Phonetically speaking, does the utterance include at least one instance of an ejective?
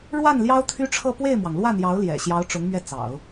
no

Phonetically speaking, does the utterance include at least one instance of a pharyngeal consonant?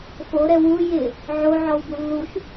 yes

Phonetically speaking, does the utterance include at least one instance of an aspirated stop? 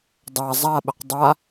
no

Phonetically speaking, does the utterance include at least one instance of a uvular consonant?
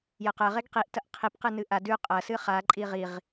yes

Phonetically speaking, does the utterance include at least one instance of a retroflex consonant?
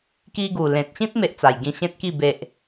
no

